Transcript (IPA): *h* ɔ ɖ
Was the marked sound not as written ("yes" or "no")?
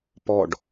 yes